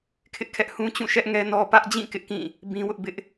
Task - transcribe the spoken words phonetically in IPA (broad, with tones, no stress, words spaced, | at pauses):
kʰɪ˦ʔkʰɛ˦ʔ hũ˦t͡ɕũ˦˨ʃɛ˦ʔ ŋɛ˦nɔ˦ pä˦ʔd͡ʑĩ˦˨ kɪ˦ʔkĩ˦˨ | bĩ˦wʊ˦ʔ bɪ˦ʔ